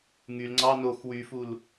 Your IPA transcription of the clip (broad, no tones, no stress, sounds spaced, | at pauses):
ŋ y l ŋ͡ǀ ɑ n o x w y f u l